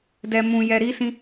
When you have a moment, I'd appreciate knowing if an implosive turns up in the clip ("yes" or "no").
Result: no